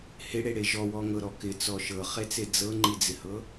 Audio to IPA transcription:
hɪɽeɽe ʒɔwɔŋɤɾɔ kɪt͡sɔ ʃɤχet͡se d͡zɤŋ͡ǃid͡zɪhɤ

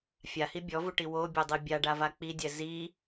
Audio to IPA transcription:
fʲahi bʲɔvuʈi wobʲodˤi bʲaɖava k͡pidʲɛ zi

